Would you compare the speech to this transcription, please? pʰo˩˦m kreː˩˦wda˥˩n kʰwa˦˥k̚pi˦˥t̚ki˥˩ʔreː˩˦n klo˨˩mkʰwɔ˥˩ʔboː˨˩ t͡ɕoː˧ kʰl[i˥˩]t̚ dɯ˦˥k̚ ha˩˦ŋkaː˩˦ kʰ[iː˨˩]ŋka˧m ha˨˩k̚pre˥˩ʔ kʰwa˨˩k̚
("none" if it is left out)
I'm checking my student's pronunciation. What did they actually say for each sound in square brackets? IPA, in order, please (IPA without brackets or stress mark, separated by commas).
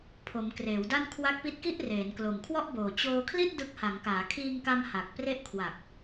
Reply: i˥˩, iː˧